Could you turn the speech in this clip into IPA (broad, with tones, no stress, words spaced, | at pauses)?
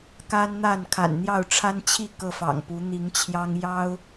ka˦nn̪a˥˨nkʰa̰˨˩n n̪jɑ˥˨ʊ̯ʈ͡ʂʰa˦nt͡ɕʰi˥˨ kɤ˥˨fɑ̰˨˩ŋpu˨˦ n̪i˨˦ŋt͡ɕʰjɑ˦ŋ jɑ˦ʊ̯